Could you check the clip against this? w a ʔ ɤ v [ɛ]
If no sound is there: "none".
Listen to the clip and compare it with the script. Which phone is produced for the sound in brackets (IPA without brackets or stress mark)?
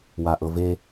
e